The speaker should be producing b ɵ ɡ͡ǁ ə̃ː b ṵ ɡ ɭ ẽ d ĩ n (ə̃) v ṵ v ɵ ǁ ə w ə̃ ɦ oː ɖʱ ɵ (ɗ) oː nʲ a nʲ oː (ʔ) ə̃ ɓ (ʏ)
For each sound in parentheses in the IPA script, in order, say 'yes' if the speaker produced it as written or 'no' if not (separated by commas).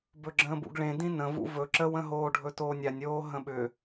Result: yes, no, no, yes